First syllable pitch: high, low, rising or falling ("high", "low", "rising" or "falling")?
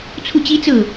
falling